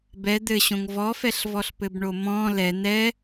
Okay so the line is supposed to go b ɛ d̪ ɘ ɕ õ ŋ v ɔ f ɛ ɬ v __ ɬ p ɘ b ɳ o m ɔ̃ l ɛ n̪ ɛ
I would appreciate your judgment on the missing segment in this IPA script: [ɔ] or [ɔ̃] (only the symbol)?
ɔ